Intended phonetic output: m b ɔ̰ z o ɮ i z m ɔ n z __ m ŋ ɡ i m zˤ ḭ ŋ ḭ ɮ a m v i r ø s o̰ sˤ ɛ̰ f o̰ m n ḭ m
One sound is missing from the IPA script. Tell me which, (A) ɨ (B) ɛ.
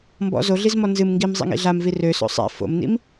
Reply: A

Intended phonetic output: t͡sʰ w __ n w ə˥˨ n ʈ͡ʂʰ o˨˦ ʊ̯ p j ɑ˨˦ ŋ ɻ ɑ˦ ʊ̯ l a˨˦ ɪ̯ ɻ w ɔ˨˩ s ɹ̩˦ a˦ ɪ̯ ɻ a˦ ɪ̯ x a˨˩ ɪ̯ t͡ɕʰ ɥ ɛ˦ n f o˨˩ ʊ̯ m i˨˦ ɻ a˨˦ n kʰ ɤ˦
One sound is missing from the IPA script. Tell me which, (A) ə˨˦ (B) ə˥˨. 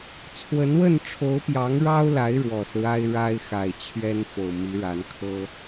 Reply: A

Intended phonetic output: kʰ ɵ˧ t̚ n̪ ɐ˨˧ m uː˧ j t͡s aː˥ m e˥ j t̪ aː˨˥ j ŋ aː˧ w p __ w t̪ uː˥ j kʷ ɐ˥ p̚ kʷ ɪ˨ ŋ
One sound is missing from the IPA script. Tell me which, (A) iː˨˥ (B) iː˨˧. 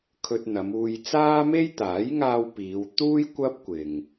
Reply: B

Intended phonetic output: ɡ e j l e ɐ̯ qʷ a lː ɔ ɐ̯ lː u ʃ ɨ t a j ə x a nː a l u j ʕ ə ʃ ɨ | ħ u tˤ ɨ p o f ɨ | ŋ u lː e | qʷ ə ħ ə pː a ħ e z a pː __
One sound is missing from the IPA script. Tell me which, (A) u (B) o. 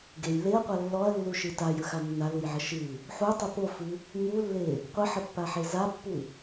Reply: A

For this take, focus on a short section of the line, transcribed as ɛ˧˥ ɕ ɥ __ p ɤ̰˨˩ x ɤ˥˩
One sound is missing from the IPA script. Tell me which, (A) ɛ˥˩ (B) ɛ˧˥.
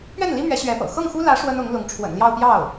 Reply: B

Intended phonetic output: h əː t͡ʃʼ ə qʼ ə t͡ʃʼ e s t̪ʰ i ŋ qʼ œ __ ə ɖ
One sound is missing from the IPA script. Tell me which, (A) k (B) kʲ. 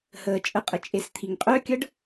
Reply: B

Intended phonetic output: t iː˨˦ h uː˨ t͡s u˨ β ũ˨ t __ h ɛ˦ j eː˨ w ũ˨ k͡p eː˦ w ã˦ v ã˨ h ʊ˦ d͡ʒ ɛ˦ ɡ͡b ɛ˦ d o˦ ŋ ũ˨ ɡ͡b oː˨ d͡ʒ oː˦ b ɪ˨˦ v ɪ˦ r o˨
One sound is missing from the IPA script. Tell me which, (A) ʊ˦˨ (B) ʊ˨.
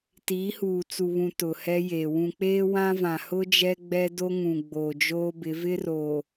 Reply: B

